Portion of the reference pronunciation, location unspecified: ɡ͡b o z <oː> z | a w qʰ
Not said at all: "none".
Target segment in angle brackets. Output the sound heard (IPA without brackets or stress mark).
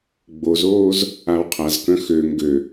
oː